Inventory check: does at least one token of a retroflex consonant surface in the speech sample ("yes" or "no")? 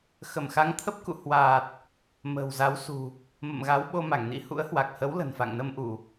no